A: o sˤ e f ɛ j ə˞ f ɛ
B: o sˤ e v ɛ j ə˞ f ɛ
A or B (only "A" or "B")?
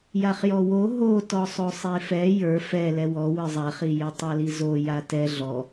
A